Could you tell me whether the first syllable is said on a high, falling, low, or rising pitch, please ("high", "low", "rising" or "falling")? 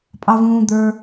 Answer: high